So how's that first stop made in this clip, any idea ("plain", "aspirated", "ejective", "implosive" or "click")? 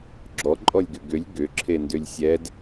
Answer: click